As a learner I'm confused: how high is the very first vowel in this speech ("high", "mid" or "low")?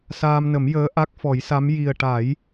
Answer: low